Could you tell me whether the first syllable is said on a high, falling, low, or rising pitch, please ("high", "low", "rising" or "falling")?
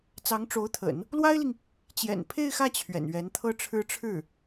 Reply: rising